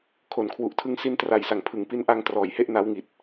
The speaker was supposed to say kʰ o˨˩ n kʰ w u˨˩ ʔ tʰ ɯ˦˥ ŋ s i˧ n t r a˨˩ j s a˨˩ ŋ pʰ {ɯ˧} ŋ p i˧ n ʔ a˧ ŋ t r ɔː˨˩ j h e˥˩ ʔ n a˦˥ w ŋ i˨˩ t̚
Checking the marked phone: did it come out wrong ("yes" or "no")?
yes